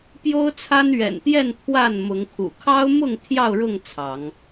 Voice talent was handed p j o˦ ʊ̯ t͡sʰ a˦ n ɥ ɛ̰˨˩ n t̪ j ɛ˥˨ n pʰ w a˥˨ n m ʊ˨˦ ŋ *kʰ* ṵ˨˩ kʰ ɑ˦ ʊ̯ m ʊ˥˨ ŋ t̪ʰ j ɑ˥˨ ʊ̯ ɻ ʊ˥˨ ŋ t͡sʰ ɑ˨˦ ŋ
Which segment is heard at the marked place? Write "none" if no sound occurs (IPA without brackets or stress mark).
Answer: kʰ